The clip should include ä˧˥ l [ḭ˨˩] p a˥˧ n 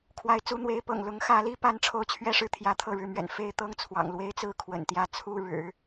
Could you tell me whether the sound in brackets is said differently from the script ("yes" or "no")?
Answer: yes